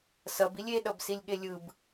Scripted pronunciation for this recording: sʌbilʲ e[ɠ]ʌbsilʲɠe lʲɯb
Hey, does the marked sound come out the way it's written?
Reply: no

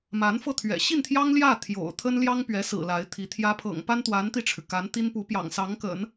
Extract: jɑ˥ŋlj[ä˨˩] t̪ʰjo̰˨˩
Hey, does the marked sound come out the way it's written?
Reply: no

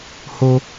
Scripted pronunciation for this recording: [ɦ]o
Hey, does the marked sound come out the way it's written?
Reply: no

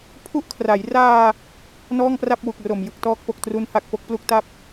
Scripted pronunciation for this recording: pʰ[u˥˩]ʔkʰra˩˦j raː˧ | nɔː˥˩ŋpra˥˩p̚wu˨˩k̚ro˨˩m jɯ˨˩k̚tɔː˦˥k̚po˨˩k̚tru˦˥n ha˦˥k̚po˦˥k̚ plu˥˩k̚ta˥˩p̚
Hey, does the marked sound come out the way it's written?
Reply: yes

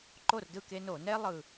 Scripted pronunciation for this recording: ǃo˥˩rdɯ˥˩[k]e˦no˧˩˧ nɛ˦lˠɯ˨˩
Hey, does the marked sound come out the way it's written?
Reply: yes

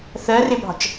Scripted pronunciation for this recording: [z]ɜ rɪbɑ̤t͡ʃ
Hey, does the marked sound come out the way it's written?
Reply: no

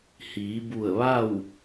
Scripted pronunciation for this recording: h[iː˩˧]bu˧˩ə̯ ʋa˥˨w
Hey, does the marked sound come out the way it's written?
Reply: yes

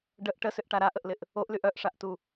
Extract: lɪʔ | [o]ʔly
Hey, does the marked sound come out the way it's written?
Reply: yes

